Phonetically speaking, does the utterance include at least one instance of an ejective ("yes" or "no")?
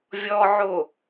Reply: no